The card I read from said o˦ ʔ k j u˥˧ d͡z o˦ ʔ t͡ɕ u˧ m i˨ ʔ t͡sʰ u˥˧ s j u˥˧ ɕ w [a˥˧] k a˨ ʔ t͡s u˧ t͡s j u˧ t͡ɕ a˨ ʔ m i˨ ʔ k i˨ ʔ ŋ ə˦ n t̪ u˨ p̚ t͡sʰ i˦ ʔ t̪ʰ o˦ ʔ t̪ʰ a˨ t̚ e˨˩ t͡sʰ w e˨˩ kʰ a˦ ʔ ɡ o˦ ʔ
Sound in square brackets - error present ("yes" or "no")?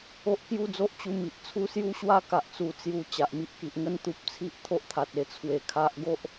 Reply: no